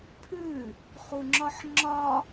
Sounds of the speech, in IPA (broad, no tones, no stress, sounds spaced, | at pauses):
pʰ ʉ | χ u ŋ͡ǁ ɒ ħ ŋ͡ǁ ɒ